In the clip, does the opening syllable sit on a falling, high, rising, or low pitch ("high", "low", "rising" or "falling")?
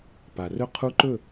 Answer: low